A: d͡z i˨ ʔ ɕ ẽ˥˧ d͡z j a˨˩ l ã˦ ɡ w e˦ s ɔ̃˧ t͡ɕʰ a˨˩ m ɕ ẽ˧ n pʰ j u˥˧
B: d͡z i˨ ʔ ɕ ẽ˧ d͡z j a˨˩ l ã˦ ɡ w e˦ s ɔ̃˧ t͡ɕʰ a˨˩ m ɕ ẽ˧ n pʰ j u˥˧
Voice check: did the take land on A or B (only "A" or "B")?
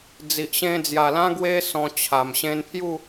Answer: B